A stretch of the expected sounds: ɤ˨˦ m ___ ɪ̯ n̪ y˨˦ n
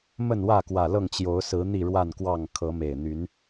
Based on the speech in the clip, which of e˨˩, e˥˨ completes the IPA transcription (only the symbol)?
e˨˩